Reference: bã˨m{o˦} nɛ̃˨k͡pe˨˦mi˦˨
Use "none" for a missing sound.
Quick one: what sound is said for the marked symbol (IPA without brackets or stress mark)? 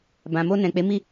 o˧